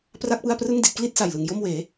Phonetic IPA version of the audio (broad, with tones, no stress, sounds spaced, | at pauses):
p r a˥˩ k̚ p ɯ˥˩ a̯ p r ɯ˥˩ ŋ d i˥˩ t̚ k l i˥˩ t̚ s a˨˩ j l ɯ˨˩ ŋ j o˥˩ m w eː˩˦